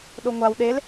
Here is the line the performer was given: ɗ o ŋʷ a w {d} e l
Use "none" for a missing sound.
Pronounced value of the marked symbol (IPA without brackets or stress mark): ɗ